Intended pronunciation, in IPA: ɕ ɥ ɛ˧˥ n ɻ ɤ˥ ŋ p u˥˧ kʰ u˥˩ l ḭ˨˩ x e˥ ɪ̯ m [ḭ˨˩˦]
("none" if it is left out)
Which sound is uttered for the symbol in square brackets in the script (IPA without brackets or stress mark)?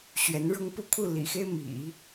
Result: ḭ˨˩˦